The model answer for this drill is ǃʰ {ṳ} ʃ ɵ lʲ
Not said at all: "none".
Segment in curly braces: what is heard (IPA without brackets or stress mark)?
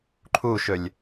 u